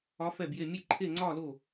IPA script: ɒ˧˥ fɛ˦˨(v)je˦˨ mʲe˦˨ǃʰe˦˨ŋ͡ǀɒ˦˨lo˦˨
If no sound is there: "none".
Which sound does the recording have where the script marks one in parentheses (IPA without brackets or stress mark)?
b